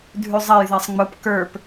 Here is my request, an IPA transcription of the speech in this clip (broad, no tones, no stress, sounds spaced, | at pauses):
dʱ ʉ zˤ ɛ j ð ɛ sˤ ŋ͡m ʊ p k ə˞ p